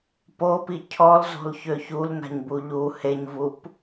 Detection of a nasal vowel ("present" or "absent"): absent